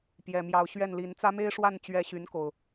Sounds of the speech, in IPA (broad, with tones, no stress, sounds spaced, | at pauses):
p j ɛ˨˩ m j ɑ˨˦ ʊ̯ ɕ ɥ ɛ˥˨ n l i˨˦ n t͡s ä˦ m e˦ ɪ̯ ʂ w a˥˨ n t͡ɕ ɥ ɛ˨˦ ɕ y˨˦ n k o˨˩ ʊ̯